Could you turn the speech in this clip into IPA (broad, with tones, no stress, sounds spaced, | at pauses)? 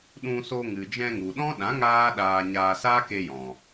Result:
ɗ ũ˧ s o˧ ŋ ɨ˨ d͡ʒ ɛ̃˧ ŋ u˨ ɗ ɔ̃˦ ɗ ã˨˦ ŋ aː˦ ɗ aː˧ ɲ aː˧ s aː˦ k e˧ j ɔ̃˨